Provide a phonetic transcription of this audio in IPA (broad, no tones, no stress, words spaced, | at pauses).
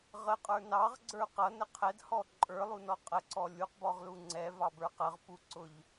ʁəqʼə˞ nɑʁɡ͡ǀə˞ qʌnə qʰɛdhɔ ǃʼə˞lˠunɔ qʼəǀɔ lʲuqbɔʁlu ŋ͡ǀɛvɑbə˞ qəʁpuǀʊʎ